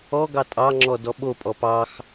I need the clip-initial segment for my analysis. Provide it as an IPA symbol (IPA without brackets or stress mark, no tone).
ɔ